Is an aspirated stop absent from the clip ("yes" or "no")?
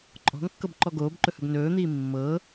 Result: yes